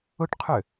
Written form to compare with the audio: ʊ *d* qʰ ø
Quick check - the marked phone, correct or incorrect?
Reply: incorrect